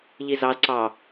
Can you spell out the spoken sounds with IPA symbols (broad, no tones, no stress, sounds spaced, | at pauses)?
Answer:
ʎ i z ɑ z ǀ ɑ